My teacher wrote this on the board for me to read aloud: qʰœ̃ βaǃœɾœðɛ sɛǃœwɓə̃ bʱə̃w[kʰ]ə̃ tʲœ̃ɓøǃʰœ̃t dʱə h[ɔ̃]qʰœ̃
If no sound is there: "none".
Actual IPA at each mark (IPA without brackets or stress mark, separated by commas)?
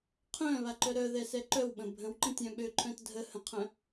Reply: ǃ, ə̃